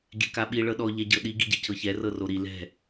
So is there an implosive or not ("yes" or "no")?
yes